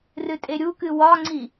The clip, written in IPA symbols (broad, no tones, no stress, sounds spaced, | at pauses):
r ɨ tʼ e ɾʲ u k ɨ w ɒ ŋ͡ǀ i